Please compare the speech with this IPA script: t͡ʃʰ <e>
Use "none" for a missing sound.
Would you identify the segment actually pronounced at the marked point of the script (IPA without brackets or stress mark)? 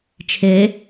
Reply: e